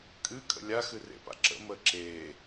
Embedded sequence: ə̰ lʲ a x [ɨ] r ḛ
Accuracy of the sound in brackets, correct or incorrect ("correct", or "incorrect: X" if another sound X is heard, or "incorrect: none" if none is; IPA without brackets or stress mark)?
correct